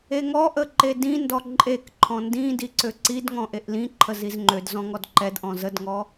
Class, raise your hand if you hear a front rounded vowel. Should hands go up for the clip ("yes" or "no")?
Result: yes